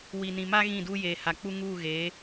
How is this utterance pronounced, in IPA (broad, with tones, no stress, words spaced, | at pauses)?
wi˨nĩ˨ma˦ ɣĩ˦˨ duː˦jeː˨ha˨ k͡pu˦ŋuː˦˨ ɣe˨˦